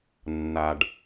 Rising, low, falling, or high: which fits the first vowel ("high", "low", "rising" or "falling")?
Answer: low